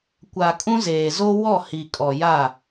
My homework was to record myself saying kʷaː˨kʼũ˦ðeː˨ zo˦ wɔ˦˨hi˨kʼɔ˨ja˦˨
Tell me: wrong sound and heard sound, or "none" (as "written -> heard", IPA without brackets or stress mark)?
ð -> z